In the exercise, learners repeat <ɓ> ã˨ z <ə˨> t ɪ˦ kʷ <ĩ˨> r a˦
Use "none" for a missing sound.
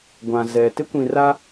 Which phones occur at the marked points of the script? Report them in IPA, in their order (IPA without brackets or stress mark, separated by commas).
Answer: ɡʷ, ɛ˨, ĩ˨